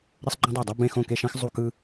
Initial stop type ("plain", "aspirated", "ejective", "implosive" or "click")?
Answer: click